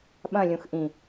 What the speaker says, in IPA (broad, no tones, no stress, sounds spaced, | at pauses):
ɓ ɐ̃ lʲ ũ x ʔ ĩ